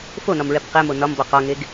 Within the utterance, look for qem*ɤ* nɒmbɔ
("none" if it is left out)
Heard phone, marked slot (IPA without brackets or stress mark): o